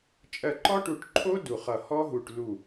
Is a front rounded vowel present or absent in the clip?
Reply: absent